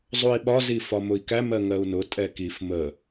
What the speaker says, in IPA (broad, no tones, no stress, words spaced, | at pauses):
zˤui̯ɓɒzi fɒmʊi̯kæmɜ ŋɜu̯nʊ tʼɛkif mə